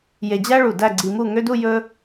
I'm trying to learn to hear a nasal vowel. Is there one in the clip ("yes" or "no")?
no